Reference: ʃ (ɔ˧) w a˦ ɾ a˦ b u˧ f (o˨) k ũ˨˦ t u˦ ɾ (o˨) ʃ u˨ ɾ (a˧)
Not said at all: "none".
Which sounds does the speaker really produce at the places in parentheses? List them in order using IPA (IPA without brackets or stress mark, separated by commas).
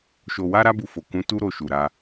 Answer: o˧, o˨, o˧, a˧